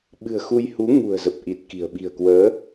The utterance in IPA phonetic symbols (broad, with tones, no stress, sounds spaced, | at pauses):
ɓ ɨ̤˨˩ ə̯ x u˧ j h u˨˦ ŋ ṳ˨˩ ə̯ z ə˨˩ p̚ ʔ i˨˩ t̚ k i̤˨˩ ə̯ ɓ i̤˨˩ ə̯ k w əː˨˦